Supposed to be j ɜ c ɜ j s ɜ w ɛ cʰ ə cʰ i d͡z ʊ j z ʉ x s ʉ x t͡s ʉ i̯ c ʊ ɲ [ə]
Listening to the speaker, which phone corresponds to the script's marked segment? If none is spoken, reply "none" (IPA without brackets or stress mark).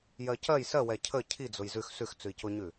ʉ